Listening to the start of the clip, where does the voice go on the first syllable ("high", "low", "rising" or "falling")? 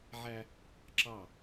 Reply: high